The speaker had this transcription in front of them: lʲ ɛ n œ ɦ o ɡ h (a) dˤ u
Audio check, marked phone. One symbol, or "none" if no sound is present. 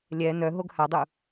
a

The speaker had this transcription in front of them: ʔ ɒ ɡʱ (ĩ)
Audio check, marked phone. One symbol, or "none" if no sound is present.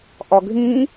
ĩ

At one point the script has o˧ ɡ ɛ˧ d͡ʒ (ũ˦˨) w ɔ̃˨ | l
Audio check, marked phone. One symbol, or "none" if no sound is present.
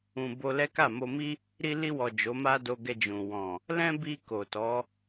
ũ˨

